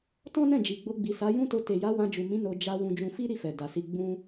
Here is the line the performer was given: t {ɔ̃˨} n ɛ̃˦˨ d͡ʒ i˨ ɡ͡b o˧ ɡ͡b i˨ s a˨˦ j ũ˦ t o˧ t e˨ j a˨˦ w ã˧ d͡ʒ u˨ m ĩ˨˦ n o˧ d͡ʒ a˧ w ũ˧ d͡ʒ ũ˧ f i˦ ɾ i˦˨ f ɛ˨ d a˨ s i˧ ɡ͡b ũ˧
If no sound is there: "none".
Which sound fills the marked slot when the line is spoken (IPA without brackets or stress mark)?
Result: ɔ̃˦